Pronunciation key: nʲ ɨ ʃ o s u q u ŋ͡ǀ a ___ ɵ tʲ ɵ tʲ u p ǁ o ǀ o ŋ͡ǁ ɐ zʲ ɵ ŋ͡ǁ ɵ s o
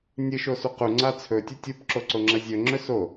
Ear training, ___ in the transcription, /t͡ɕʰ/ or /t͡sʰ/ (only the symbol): t͡sʰ